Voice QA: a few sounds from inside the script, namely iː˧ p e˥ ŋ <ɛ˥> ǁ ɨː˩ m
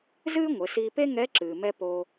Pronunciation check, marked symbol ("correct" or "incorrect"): incorrect